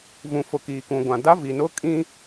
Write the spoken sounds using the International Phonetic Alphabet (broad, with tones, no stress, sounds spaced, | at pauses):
v ũ˨ f ʊ˨ k iː˨ k ũ˨ ɡʷ ã˨ d a˦ v i˨ n ʊ˦ kʼ ĩ˦